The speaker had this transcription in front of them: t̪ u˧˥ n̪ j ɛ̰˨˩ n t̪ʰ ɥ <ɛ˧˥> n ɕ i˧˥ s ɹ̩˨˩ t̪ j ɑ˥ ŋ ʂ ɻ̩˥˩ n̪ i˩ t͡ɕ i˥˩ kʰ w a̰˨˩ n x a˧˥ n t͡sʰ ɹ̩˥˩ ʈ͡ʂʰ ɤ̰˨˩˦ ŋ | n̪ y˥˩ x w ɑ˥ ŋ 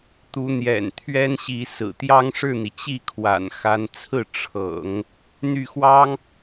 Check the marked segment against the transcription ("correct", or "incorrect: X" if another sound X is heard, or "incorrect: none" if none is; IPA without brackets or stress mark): incorrect: ɛ˥